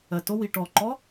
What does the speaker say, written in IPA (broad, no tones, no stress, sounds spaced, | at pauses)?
ɜ t o w i ʈ ɔ ǃ ɔ